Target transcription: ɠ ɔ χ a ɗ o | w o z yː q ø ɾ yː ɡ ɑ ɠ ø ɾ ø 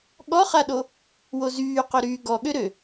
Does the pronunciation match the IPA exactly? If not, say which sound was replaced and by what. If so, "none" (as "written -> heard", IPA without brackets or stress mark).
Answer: ɑ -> ɔ